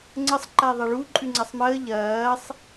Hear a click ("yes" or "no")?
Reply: yes